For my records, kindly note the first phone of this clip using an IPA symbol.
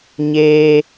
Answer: ɲ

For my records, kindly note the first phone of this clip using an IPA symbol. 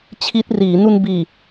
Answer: t͡ɕʰ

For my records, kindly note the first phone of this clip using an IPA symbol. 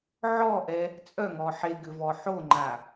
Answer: ʕ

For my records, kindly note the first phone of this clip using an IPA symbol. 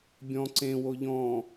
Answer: bʲ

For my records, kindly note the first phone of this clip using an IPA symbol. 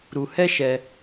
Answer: ɾ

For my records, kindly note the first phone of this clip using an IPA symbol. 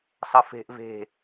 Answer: sˤ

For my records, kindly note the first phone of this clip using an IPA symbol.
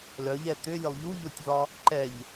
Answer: l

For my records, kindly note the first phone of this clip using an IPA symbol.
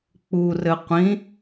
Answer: k͡p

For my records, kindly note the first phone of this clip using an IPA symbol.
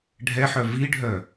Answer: ɖʱ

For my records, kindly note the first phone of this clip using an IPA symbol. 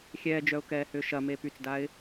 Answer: xʲ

